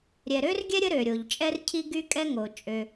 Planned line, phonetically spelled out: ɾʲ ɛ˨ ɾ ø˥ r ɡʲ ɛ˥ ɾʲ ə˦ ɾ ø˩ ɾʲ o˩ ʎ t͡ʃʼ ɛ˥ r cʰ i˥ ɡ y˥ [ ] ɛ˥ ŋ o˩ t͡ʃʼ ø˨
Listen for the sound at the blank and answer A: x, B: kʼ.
B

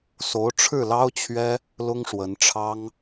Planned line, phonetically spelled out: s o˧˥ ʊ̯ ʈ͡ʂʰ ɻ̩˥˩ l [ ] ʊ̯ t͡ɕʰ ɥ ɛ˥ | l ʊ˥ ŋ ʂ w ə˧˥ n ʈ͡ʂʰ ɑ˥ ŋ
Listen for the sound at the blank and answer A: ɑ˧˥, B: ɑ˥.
B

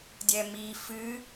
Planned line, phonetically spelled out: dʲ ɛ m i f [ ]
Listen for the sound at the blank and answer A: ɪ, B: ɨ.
B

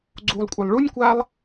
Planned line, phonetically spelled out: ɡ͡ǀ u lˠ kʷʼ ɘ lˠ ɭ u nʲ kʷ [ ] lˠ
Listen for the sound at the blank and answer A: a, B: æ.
A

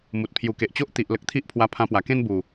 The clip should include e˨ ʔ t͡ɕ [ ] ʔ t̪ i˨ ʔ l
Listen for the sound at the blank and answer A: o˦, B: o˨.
A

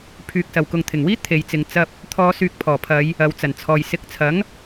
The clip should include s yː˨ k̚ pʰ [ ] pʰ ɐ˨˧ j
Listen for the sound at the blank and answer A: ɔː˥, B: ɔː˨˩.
B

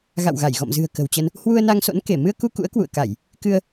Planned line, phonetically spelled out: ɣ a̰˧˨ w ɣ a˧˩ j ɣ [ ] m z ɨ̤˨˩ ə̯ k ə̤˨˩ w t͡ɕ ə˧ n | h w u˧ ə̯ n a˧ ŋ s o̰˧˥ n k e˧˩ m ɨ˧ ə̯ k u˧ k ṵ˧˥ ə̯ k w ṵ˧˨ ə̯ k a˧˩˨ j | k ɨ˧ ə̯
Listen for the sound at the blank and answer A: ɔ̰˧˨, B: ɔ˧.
A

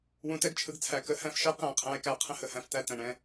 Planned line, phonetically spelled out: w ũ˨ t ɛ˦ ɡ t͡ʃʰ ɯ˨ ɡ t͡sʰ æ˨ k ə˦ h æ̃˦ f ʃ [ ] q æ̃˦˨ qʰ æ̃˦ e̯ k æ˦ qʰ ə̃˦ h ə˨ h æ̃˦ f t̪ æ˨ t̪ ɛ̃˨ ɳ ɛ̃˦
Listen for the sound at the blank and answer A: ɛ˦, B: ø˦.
A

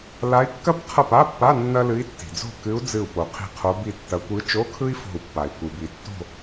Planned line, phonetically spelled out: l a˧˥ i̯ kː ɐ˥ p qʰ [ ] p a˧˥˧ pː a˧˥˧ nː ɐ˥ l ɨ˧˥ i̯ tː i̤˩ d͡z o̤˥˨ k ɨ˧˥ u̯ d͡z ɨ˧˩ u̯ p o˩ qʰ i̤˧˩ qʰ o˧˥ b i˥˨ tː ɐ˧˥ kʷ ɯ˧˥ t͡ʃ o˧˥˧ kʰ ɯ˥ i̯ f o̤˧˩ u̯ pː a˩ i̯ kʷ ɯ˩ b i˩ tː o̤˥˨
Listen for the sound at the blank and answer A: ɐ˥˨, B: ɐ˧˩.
A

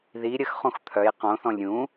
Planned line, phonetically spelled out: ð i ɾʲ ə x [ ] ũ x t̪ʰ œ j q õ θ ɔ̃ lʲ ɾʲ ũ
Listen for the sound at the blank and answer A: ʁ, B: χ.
B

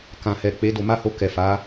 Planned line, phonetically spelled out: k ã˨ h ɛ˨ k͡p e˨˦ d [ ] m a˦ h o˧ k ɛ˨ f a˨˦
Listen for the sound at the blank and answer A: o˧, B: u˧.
A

